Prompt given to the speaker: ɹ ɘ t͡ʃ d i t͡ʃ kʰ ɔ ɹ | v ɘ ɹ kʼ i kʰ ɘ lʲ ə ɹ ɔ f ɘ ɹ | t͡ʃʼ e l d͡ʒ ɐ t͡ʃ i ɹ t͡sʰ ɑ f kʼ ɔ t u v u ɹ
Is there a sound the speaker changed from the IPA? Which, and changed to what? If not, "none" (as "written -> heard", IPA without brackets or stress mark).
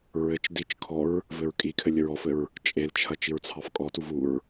d͡ʒ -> t͡ʃʰ